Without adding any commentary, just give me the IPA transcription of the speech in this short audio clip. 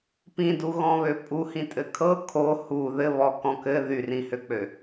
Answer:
p ĩ d u ɣ ɔ̃ β ø pʼ u h ĩ tʼ ɘ kʰ ɤ kʰ o h u ð ɘ β ɔ k ɔ̃ k ɘ ð y r ĩ h ø k͡p ø

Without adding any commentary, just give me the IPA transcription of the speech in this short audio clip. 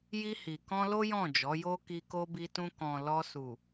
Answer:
j i˧ h i˨ k ɔ̃˧ l o˦ j ɔ̃˦˨ d͡ʒ ɔ˨˦ j o˧ k i˧ k o˧ b i˧ t ũ˧ k ɔ̃˨ l ɔ˧ s u˨

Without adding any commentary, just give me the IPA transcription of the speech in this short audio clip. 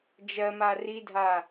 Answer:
d͡ʒ ɜ m a r i dʱ a

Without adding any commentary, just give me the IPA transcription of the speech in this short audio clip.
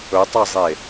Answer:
ɵ tˤ ɐ zˤ e

